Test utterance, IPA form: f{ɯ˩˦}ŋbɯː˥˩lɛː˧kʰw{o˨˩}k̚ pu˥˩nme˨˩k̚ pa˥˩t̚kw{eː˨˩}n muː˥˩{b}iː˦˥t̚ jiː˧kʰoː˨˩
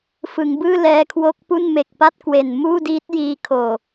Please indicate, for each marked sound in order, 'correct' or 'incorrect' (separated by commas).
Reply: correct, incorrect, incorrect, incorrect